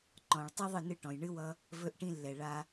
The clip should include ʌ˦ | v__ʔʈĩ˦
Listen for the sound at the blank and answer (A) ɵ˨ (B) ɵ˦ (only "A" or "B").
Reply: B